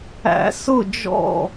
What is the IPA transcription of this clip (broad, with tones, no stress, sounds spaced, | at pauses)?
æ̰˧˥ s ʊ˥˨ d͡ʒ ɔ̰˥˨